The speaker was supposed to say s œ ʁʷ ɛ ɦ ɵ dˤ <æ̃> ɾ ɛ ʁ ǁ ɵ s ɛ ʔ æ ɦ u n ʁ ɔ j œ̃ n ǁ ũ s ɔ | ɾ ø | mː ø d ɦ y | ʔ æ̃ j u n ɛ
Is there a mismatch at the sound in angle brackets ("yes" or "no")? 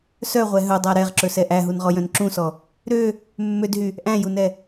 yes